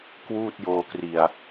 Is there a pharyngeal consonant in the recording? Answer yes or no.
no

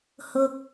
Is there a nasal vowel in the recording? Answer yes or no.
no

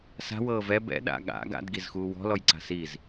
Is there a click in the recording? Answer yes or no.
yes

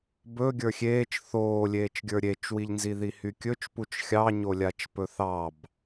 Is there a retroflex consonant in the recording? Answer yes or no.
no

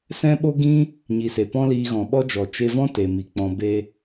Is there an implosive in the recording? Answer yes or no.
yes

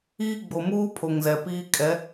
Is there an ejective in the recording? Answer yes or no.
yes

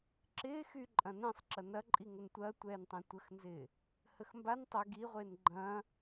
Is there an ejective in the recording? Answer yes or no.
yes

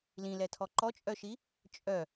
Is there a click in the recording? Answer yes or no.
yes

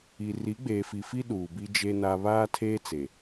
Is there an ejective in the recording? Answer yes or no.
no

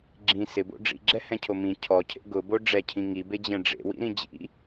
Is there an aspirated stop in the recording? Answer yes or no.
yes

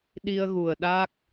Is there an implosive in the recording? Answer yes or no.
yes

